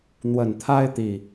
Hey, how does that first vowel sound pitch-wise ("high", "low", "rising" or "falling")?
low